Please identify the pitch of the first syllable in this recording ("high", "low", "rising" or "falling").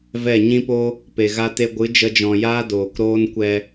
falling